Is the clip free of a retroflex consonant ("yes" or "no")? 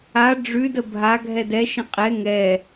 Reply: no